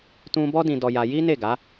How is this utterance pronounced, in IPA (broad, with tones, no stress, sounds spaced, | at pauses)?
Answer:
t ũ˦ b ɔ˦ d ĩ˧ d ɔ˧ j a˧ j i˦ n e˦˨ ɡ a˨˦